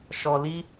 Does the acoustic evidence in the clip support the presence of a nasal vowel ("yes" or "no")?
no